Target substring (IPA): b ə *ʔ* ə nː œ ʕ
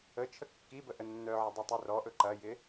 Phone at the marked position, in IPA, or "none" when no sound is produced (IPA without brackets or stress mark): ʔ